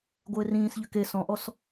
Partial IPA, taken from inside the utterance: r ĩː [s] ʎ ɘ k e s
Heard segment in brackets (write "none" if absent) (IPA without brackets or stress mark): s